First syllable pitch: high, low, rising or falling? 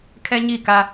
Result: high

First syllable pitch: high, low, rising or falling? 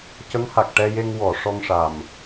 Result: rising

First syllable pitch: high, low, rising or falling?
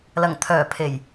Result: low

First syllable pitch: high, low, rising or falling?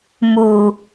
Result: low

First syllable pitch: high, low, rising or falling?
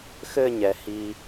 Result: falling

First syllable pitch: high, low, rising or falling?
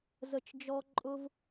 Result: falling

